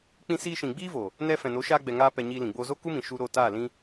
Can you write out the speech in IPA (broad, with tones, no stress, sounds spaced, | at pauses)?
k͡p ĩ˧ s iː˧ ʃ ĩ˨ ɡ͡b iː˦ v o˨ | n ɛ˧ f ɛ̃˨ n o˨˦ ʃ aː˦ ɡ͡b ɛ˧ ŋ aː˦ p ɛ˧ ɲ iː˧ l ĩ˨ ɡ͡b oː˧ z o˦ k u˦ m ĩ˨ ʃ u˧ ɾ o˦˨ t aː˦˨ l ĩ˦